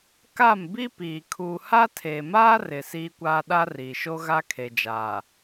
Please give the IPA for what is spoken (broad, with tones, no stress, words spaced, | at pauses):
ka˦˨m bi˦piː˨ kʰuː˨ha˦ tʰeː˨maː˦rɪ˨ siː˦kʷaː˦ ɗa˦riː˨ʃo˦ ɣa˦kʰe˨d͡ʒaː˨